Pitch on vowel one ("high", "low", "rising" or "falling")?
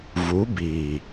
rising